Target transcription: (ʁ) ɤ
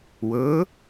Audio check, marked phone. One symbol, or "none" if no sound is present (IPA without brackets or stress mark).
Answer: w